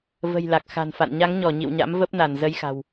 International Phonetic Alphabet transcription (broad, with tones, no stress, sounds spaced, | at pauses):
v ə̤˨˩ j l a˨˩ k̚ x a̤˨˩ n f a̰˧˨ n ɲ a˨˦ ŋ ɲ ɔ˧˩ ɲ ḭ˧˨ w ɲ a̰˧˥ m v ə˦˥ p̚ n a˧˩ n z ə˧ j x a̤˨˩ w